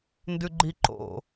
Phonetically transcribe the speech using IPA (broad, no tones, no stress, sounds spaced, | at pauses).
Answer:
n d ʉ ɡ͡ǃ i ǃ o̰